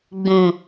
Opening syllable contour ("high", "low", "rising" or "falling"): low